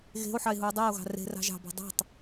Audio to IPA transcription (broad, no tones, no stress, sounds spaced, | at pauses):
ɣ e̤ o̯ ħ ɑ e̯ ɦ u o̯ dˤ e o̯ ɣ ɑ̤ r e̤ r ɑ̤ ʒ ɑ̤ b ɑ̤ dˤ e̤ tˤ